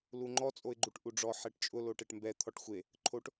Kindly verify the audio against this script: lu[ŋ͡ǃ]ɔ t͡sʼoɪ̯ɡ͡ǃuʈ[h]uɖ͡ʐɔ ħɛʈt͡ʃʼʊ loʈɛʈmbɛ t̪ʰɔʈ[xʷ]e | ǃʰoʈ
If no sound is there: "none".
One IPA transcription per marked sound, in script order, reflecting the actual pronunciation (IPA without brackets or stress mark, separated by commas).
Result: ŋ͡ǃ, ʔ, xʷ